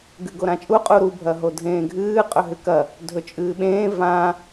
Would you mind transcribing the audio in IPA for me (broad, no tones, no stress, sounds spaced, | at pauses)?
ɡ ɨ ɡ o ɾ ã t͡ʃʼ u qʼ u ɾ u bʱ ɐ ɦ o dʱ ẽː ɡʱ ɨː qʼ ɵ ɦ ɨ k ɐ | dʱ ɵ t͡ʃʼ ɨː ɓ ẽː v ã